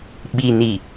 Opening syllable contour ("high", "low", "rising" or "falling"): low